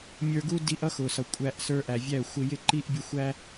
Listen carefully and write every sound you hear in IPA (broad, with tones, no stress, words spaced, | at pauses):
mʲə˞˧ɡu˦ di˧ʔʌ˦ xʊ˨sʌ˨kʷʼæ˧ʔsə˞˧ ʔæ˨vʲæ˦˨ə̯ xʷɪ˧jɪ˦ǃi˦ʔ bʲʊ˧xʷæ˦